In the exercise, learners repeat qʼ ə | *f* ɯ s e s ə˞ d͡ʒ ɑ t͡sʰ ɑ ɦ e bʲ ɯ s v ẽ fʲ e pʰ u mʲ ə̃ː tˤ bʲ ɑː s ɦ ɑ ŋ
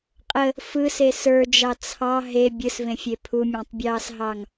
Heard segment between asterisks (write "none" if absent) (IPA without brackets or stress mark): f